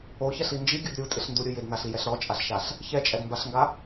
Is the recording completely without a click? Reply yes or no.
yes